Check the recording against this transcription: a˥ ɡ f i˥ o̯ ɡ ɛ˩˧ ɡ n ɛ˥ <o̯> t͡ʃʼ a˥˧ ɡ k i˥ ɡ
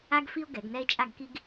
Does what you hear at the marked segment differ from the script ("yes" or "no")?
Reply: yes